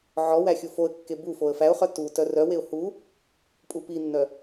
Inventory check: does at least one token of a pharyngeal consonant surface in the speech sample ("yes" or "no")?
yes